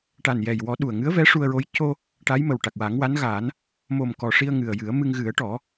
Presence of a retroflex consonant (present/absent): present